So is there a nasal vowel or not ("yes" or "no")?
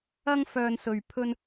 no